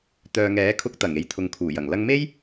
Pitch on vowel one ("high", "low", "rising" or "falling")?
low